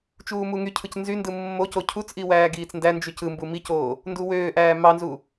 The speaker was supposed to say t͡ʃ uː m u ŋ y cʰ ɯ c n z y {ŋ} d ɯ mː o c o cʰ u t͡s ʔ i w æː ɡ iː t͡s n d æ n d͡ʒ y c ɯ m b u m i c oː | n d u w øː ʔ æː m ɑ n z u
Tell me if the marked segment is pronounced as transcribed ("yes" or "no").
no